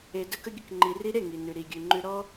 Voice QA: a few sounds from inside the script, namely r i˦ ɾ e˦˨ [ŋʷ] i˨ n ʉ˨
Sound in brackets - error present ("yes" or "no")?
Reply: yes